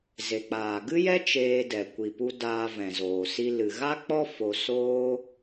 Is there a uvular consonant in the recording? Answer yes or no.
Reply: no